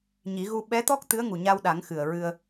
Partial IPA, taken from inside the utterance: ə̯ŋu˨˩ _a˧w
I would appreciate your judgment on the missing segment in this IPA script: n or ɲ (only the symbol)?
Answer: ɲ